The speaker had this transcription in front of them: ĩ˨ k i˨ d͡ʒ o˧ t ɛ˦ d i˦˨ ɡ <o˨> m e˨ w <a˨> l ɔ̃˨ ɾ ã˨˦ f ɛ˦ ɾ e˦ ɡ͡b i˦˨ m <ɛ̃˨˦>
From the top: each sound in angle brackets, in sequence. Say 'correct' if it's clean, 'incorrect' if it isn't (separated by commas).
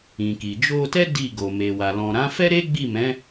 correct, correct, correct